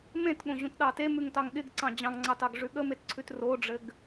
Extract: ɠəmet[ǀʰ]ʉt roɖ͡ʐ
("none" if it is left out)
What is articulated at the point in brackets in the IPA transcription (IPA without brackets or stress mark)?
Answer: ǀʰ